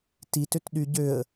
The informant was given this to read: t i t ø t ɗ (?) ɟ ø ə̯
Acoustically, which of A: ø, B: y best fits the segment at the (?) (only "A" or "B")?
B